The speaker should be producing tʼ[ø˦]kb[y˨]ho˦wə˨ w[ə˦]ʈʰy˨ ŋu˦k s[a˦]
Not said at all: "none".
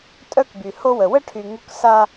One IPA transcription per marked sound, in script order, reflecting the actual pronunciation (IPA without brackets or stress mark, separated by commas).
œ˦, y˨, ə˦, a˦